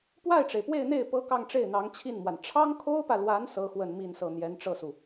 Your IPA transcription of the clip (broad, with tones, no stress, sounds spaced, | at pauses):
p w a˥˩ ɪ̯ ʈ͡ʂ e˩ ɪ̯ p w e˥˧ ɪ̯ n̪ e˥˩ ɪ̯ p ɤ˥ k ɑ˥˧ ŋ ʈ͡ʂ e˥˩ ɪ̯ n̪ ɑ˧˥ ŋ t͡ɕʰ i˥˩ n m w a˩ n ʈ͡ʂʰ ɑ˥ ŋ kʰ o˥ ʊ̯ p ä˨ l w a˧˥ n s ɤ˥ x w ə˥˧ n m i˥˧ n s ɤ˥˩ n̪ j ɛ˧˥ n ʈ͡ʂ ɤ˥˩ s u˩